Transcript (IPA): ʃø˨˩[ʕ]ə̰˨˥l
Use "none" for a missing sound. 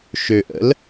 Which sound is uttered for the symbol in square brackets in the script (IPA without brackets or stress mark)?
ʔ